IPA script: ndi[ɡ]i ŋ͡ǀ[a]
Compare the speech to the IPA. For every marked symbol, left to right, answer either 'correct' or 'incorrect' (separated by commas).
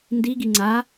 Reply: correct, correct